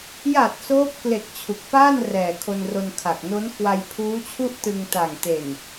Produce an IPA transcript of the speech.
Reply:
j a˨˩ t̚ s oː˦˥ p̚ k l e˨˩ k̚ t͡ɕʰ u˨˩ k̚ p aː˥˩ n r ɛː˨˩ kʰ o˧ n r o˧ n kʰ a˨˩ k̚ n o˦˥ n k w a˧ j pʰ uː˦˥ t͡ɕʰ u˥˩ ʔ t ɯ˧ ŋ t a˨˩ ŋ t e˨˩ n

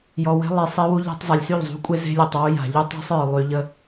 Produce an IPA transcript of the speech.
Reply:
j ɔ˨ w e̤˦ lˠ e˨ sˤ e˦ w u˦ ʎ a̤˦ tˤ zˤ a˨ lʲ s y˦˨ ʎ zˤ ṳ˦ kʷʼ e˦ z e̤˦ lʲ ə˞˨ tˤ w u˦ j a̤˨ ʎ u˦ tˤ e̤˦ sˤ ə˞˨ lˠ y˨ ʎ ə˦

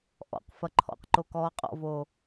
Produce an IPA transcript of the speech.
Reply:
ʔ ɔ̰ q f ɐ ǃʰ ɔ̰ q ǃ o k ɔː qʼ ɔ̰ v oː

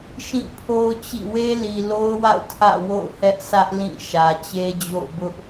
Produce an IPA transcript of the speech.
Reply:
ʃ ĩ˦˨ pʰ o˦ ʊ̯ t͡ɕ ḭ˦˨ w e˦ l i˨ l o˦ ʊ̯ w a̰˦˨ ʊ̯ tʰ ä̰˦˨ w o̰˦˨ ʊ̯ h ɛ˦ ʔ sʰ ä˦ ʔ l ĩ˦˨ ʃ ä˨ t͡ɕ e˦ d͡ʑ o̰˦˨ ʊ̯ b ʊ˦ ʔ

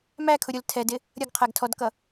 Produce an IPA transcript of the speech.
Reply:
m æ kʰ ʊ ɾʲ ʊ l tʰ ɛ d ɪ | ɾʲ ʌ ɡ qʰ æ ɡ tʰ ɔ d k ʌ

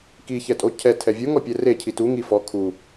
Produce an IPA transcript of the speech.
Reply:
k i ç ɛ tʼ o cʰ ɛ tʰ ɛ vʲ o ŋ ɔ pʲ ɛ r e cʰ i t u ŋ i f ɔ kʰ u

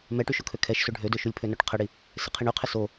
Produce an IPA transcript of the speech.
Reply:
m ɛ ʈ y ʃ o kʰ ø kʰ ɛ ʃ s ø ɖʱ ø d ø ʃ u lʲ pʰ ø n œ ʈ qʰ ə ɽ i | s ɪ qʰ i ɳ y qʰ ɪ s o

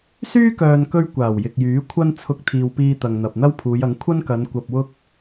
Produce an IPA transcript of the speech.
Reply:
s yː˥ k œː˨ n k ɵ˧ ɥ kʷ aː˨˩ w j ɪ˨ k̚ j yː˨˥ kʷʰ ɐ˥ n t͡sʰ ʊ˧ k̚ t̪ʰ iː˨ w p iː˧ t̪ ɐ˨ ŋ n̪ ɐ˨ p̚ n̪ ɐ˥ w pʰ uː˨˧ j ɐ˨˥ ŋ kʷʰ ɐ˥ n k ɐ˨˧ n kʷ ɐ˧ p̚ w ʊ˥ k̚

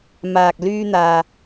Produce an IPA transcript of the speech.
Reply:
m aː˨ k̚ l yː˧ n̪ aː˨

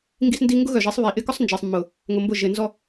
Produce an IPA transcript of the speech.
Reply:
ŋ ɡ i˦ s n d i˦ ŋ ɡ ʊ˦ ɣ œ˨ ʒ i˨˦ sˤ β i˨ ʔ ɪ˦ k ʊ˦ sˤ n d͡ʒ e˨ sˤ mː ʊ˨ | ŋ ʊ˨ m b ʊ˦˨ ʒ ɪ˨ n z ɔ˦

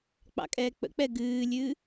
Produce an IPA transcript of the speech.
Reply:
k͡p ɑ̰ kʼ ɛː k͡p ə̰ k͡p ɛ ɡ ɨː lʲ ɨː

